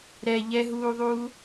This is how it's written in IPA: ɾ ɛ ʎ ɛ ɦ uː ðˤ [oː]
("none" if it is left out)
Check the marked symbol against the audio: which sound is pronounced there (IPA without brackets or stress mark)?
uː